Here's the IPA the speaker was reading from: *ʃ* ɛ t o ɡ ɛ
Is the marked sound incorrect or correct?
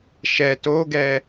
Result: correct